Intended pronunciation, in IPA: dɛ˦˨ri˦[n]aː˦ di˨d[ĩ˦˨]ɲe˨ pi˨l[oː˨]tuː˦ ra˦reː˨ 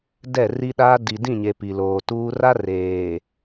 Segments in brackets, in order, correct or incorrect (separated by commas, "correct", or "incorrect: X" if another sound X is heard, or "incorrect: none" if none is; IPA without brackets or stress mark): incorrect: ɗ, correct, correct